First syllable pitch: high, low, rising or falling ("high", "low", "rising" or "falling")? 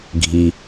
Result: low